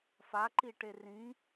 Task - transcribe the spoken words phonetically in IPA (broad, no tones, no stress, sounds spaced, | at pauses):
f a ǃ i ʈ e r ĩ